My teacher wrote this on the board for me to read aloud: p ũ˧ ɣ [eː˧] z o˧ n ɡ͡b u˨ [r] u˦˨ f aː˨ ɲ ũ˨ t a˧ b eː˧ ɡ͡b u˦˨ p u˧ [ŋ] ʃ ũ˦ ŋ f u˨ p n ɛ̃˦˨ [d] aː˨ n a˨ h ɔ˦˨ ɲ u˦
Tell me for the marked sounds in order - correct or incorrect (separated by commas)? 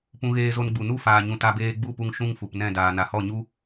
correct, incorrect, correct, correct